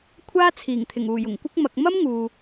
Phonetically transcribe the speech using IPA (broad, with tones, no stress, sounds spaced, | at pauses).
kʷʰ aː˥ t͡sʰ iː˨˩ ŋ t̪ʰ ɪ˨˩ ŋ uː˨˩ j ʊ˨˩ ŋ kʷ ɪ˥ k̚ m ɐ˧ k̚ m ɐ˥ m ŋ uː˨